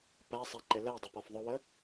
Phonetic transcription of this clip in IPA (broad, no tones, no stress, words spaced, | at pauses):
pæsˤɛ ǃɪlɜdˤɪ pɒfðˤʊwə